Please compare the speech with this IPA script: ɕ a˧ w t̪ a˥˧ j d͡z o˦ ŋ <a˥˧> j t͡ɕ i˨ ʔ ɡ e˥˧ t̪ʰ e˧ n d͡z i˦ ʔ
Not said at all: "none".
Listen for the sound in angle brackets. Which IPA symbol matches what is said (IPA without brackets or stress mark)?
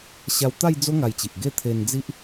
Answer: a˧